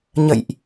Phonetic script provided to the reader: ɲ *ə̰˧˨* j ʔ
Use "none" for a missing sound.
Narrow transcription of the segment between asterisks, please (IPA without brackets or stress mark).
ə̰˧˨